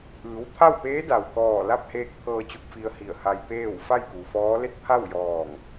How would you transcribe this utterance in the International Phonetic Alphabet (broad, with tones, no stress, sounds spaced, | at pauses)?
ʔ ɯː˩˧ w t̪ʰ a˥˨ w p eː˧˥ d a˩ w k ɔː˧˩ l a˥˨ p̚ h eː˧ k̚ pʰ ɤː˧ t͡ɕ u˧ k̚ f i˧ ə̯ h i˧˩ ə̯ h a˧ j p eː˥˨ w f a˥˨ j k u˩ f ɔː˧˥ l e˥˨ t̚ pʰ a˥˨ w j ɔː˧˩ ŋ